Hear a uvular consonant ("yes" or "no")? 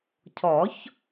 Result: no